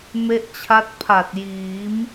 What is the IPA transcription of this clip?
m e˦˥ ʔ t͡ɕʰ a˦˥ t̚ pʰ a˨˩ t̚ j iː˩˦ m

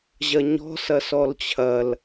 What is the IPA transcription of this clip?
ʑ ɐ ɲ ɔ̤ s ɐ s ɔ l t͡ɕʰ ɐ l

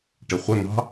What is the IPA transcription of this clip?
ʈ ɪ χʷ ə n̪ ɑ̤

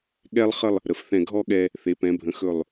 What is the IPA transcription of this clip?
ɠ ɛ˧ lˠ χ ə˥˧ lˠ | ɾ ə˩˧ f θ ɛ̃˧˩ ɡʱ ɔ˥˧ ɠ ɛ˧ | θ e˩˧ p ɛ̃˩˧ bʱ ə̃˩˧ x ɵ˧˩ lˠ

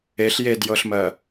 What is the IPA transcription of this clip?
e ɬ j e d j ɤ ɬ m ɜ

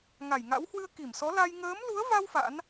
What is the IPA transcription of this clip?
ŋ a˧˩ j ŋ a̰˧˥ w h w ɨ˧ ə̯ k i˧˩ m s ɔ˨˦ l a˧ j ŋ əː˨˦ m l u˨˦ ə̯ v a˧ w f a̰˧˥ n

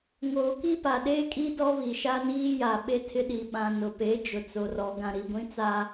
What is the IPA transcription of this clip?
ŋ oː˨ k i˦ p a˨ ɗ eː˦ kʼ i˦ d ɔ˦ β i˨ ʃ a˦ n iː˦ j a˨ ɓ e˦ tʰ ɪ˦ ɗ i˨ ɓ ã˨ n ʊ˨ p e˨˦ d͡ʒ ʊ˨ t͡s o˨ r ɔ˨ ɡ ã˨ ɾ i˨ ɡʷ ĩ˦ t͡s a˦

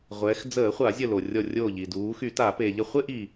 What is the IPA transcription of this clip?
ʁʷ ɛː˩˧ x d͡z əː˧˩˧ χʷ a˧˩˧ zʲ ə˧˩ l o˩ rʲ ɔ˧˩ rʲ o˧˩ ʎ i˩ d uː˩˧ x y˧˩˧ t a˧˩˧ p e˩ ʎ ə˧˩ χʷ e˥˧ ʔ i˩

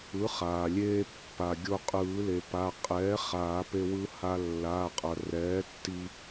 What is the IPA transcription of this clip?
ɯ˩˥ χ aː˩ lʲ eː˧ pː a˩ ɡʲ o˧ qʼ ɯː˨˩˦ l e˩ p a˩˧˩ qʼ ɛː˩˥ χ aː˨˩˦ p e˧ w ɯ˧ h a˧ lː a˩˧˩ qʼ ʌ˩ r ɛː˩˥ tː i˧

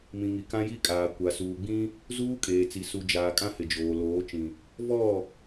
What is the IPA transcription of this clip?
m ĩ˨ ŋ i˨ k ã˦ j i˦ kʼ aː˨ kʷ a˨ s uː˨ ɡ͡b ĩ˦ | z uː˦ kʼ eː˨ t͡s i˨ s u˨ d͡ʒ aː˨ kʼ ã˦ h ɪ˨ d͡ʒ oː˨ l oː˨˦ t͡ʃ ĩ˨ | v ɔ˦˨

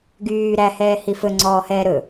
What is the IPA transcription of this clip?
ɡ yː ɾ æ h ɛː h i f ɵ ŋ͡ǀ ɔː h ɛː ɾ ɵ

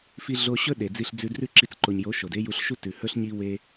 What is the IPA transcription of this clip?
f i˧ ɮ o˧ ɕ ɵ˦ ɗ e˨ d͡z i˧ ɬ d͡z ʉ˧ d r ʉ˦ ǁ i˧ t͡s ǃ o˨ ɲ j o˨˦ ʃ o˨ d e˦ j u˧ ɬ ʃ u˦ t ʉ˨ h ɵ˦ ɬ ɲ i˦ w e˦

